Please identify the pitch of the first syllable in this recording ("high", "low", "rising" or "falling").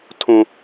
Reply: high